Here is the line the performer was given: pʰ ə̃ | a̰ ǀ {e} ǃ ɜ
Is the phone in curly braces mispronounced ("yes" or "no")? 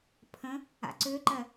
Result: yes